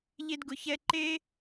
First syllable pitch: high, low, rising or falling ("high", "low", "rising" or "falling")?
high